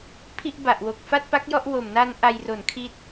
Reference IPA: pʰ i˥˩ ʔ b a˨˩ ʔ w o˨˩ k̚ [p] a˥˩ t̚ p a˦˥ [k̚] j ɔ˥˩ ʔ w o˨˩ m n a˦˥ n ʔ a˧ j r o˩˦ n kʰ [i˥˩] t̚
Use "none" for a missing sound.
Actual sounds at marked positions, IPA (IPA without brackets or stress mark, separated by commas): f, k̚, i˦˥